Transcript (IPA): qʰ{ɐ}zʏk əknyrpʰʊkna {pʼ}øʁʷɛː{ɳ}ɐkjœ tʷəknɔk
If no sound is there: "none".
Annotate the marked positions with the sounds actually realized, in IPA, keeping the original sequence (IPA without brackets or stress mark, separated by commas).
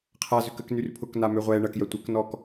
a, m, ɳ